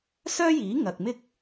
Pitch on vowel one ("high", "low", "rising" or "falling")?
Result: high